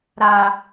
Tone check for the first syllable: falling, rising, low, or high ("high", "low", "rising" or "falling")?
low